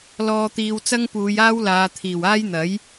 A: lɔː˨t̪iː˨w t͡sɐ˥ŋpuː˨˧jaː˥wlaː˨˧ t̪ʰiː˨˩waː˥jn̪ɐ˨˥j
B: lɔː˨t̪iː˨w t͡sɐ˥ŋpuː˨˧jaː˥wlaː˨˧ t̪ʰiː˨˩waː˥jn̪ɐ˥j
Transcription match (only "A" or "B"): A